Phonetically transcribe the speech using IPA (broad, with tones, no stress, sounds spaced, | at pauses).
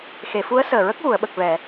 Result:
x e˨˩˨ f u˧˥ ə̯ s əː˨˩ ɹ ə˦˥ k̚ ɣ u˨˩˨ ə̯ ɓ ə˨˩ k̚ v ɛ˨˩˨